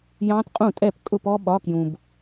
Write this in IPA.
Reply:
j ɑ̃˦˥ t qʼ ũ˥˩ tʼ ɛ˥˩ p kʼ ʊ˥˩ p ɔ˦˥ ɓ ɒ˧˥˧ k j ũ˨ b

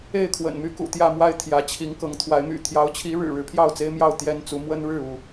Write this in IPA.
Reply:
e˥˨ ɪ̯ kʰ w ə̰˨˩ n m y˦ k ṵ˨˩ t̪ j ä˥˨ m w a˥˨ ɪ̯ t̪ʰ j ä˨˦ t͡ɕʰ i˨˦ ŋ k ɤ˨˦ ŋ t̪ʰ w a˨˦ ɪ̯ m y̰˨˩ t̪ʰ j ɑ˨˦ ʊ̯ t͡ɕʰ i˨˦ ɻ ɻ̩˨˩ ɻ ɻ̩˨˦ pʰ j ɑ˥˨ ʊ̯ t͡s e˦ ɪ̯ m j ɑ˥˨ ʊ̯ t̪ j ɛ˦ n t͡s u˨˦ m w ə˦ n ɻ ɻ̩˥˨ u˥˨

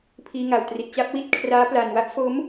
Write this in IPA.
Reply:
pʰ iː˧ ŋ a˨˩ w t r i˨˩ t̚ t͡ɕ a˥˩ p̚ w i˥˩ t̚ kʰ r aː˦˥ p l a˨˩ n w a˦˥ ʔ f o˦˥ m

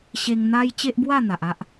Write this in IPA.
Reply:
ɕ e˧ ŋ n̪ a˦ j t͡ɕ e˦ ʔ b w a˥˧ n̪ a˨ ʔ a˦ ʔ

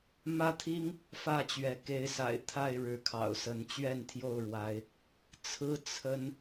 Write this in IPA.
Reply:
m ä˦ t̪ʰ i˦ ŋ | f ä˥˨ t͡ɕ ɥ ɛ˨˦ k e˨˦ ɪ̯ s a̰˨˩ ɪ̯ t̪ʰ a˥˨ ɪ̯ ɻ ɻ̩˨˦ kʰ ɑ̰˨˩ ʊ̯ s ə˨˦ n t͡ɕ ɥ ɛ˥˨ n t̪ʰ j o˥˨ ʊ̯ ɻ w a˨˦ ɪ̯ | t͡sʰ ɹ̩˦ t͡sʰ ə˦ n

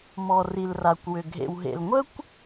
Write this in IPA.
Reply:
m ɔ˩ r i˩ l r a˩ kʷ w ʏ˩ ɡʱ ḛ˩ w ɦ ḛ˩ l ŋʷ ə˥ kʷ

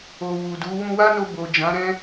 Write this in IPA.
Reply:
o˨ w u˨ d u˨˦ w ũ˧ w a˦ n o˧ b o˨ d͡ʒ ã˨˦ ɾ ɛ̃˦

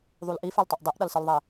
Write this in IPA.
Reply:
ðˤ u l ʔ i f e l tˤ ɛ ʔ dˤ e ʔ ɗ ʌ l s ɯ l ðˤ e

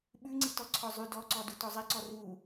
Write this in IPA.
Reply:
ɓ ʉ ŋ͡ǀ i t ɔ ǀʰ ɔ zˤ ʉ d ɔ ǀ ɔ d u t ɔ zˤ i ǀ ɔ r u

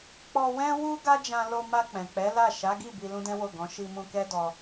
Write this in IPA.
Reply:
k͡p ɔ˧ w ɛ̃˦ w u˦ ɡ a˦ d͡ʒ ã˧ l o˧ m a˧ k͡p ɛ̃˨ k͡p ɛ˨˦ l a˦˨ ʃ a˨˦ ɡ i˦˨ b i˧ l ũ˦ d ɛ̃˦ w o˦˨ ɡ ɔ̃˨˦ ʃ i˧ m ũ˧ k ɛ˦ d ɔ˧

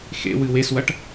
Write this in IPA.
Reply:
x ḛ w ɨ w e s w ɐ ʈ

